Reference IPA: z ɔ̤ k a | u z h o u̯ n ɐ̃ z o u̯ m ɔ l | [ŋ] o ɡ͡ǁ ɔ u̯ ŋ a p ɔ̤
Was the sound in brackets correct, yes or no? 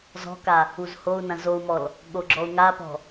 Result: no